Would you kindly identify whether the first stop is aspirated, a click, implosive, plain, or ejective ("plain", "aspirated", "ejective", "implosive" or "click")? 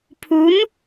aspirated